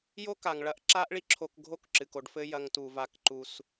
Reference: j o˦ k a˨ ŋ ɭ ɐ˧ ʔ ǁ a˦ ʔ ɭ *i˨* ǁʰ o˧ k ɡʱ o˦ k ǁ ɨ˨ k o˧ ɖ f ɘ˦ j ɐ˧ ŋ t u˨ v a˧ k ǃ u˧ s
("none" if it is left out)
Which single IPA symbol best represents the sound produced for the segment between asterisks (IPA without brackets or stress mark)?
i˦